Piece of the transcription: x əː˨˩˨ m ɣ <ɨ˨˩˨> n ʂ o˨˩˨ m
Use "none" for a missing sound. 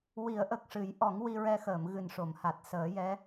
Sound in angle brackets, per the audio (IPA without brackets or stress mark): ɨ˨˩